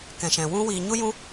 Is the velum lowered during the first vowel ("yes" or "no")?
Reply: yes